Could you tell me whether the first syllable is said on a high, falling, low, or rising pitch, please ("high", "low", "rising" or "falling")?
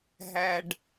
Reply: low